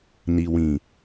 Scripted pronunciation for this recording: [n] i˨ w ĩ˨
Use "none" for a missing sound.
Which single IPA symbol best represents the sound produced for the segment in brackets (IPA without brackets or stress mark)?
n